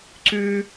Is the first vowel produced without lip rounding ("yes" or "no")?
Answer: no